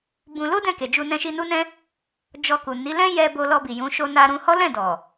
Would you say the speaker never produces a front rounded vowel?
yes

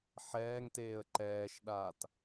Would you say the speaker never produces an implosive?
no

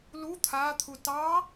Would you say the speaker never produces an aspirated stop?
no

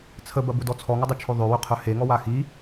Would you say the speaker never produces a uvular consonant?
no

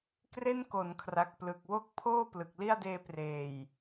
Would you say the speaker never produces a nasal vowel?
yes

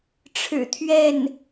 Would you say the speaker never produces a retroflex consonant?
no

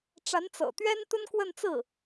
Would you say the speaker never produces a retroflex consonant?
no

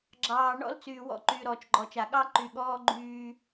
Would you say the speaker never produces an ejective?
yes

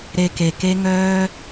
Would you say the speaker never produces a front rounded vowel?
no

